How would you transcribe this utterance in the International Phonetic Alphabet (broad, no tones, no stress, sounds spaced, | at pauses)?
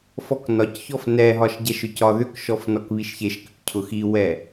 f ɔ k n ɒ c ç ɔ f n ɛ ɦ ɒ ʃ ɟ ɛ ʃ ʏ c ɒ ð ʏ k ʃ ɔ f n ɔ k β i ʃ ç e ʃ k ʏ k cʰ ʊ x i w ɛ